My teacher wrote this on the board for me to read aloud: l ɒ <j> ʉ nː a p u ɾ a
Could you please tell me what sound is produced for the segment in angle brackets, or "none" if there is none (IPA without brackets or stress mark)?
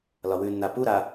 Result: w